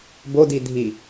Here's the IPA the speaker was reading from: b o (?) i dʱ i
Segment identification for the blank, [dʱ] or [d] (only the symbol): d